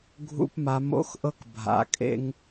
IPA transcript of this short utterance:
ɡʱ ṵ˧ p m a˩˧ m o̰˧˥ x ʔ ɤ˥ k bʱ a̰˩˧ kʼ ḛ˥ ŋ

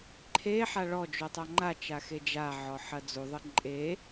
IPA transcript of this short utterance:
ǃʰ e ħ a ɭ ɔ d͡ʒ u tˤ a ŋ͡ǃ a t͡ʃ a x e d͡ʒ a ʕ ɔ ħ ɐ d͡z u ðˤ ɨ ǃʼ e

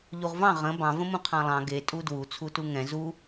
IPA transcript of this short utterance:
ʎ u ʁ v ɑ̃ ʁ ə̃ b ɑ̃ v ə̃ m ũ qʰ ɑ̃ lˠ ɑ̃ ɡ e tʼ u d w u t͡sʰ u t u ŋ ɛ̃ z u

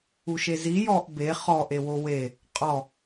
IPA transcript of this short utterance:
u ʃ e z i j ɔ ʔ b e χ ɔ ʔ e w o w e | qʼ ɔ

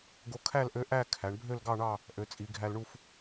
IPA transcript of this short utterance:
ɡ o˧ kʰ æ˥˧ l ʔ ø˧˥ ʔ æ˥˧ kʰ æ˩˧ ɳ bʱ ø˥˧ l ɡ ɑ˥˧ ɳ ɑ˥˧ | ʔ ø˩˧ t͡sʼ i˩˧ ɡʱ æ˧ l ɳ u˥˧ f

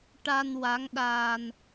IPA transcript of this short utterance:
ʈ a˧ n w a˧˥ ŋ ɗ aː˧ n

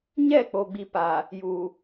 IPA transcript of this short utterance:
ɲ ɛ˦˨ k͡p o˨ ɡ͡b i˨ p a˨ | j u˨

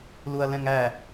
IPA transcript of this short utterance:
l u ɐ̯ l ɛ̃ ŋ æ

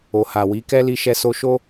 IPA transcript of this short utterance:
o˨ h a˨ w i˨˦ k ɛ˦ l i˧ ʃ ɛ˧ s o˧ ʃ o˦

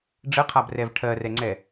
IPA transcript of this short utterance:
ɖ͡ʐ ə qʰ a b r ɛ v ʈʰ ɜ r ɛ ŋ͡ǀ ɛ

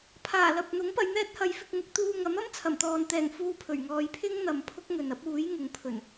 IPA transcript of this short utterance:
pʰ aː˨˩ l ɐ˨ p̚ n̪ ʊ˨˥ ŋ p ɐ˨˧ j n̪ ɛː˥ t̚ h ɐ˨˧ j f ɪ˧ k̚ ŋ ʊ˥ k̚ t̪ uː˧ ŋ ɐ˨˥ m ɐ˥ m t͡sʰ ɐ˨˩ m t̪ ɔː˨ n t̪ ɛː˨˩ ŋ f uː˧ pʰ ɵ˨˩ ɥ ŋ ɔː˧ j pʰ ɪ˥ ŋ n̪ ɐ˨ m pʰ ʊ˥ k̚ ŋ ɵ˨ n ɐ˥ p̚ uː˨˥ j ŋ ʊ˨˧ ŋ pʰ ɵ˨˩ n

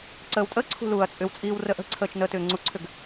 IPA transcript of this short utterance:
ǀ əː w tʼ əː ǀʰ ṳ l uː ɐ̯ t͡sʼ ʏ w t͡sʼ iː w r ə ʔ ə̤ ǀʰ əː t͡ʃ n əː t ʏː ŋ͡ǀ u ǀʰ ʏ ɡ

